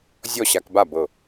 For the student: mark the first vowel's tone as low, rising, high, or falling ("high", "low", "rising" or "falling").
falling